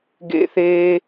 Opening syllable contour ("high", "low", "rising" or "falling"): high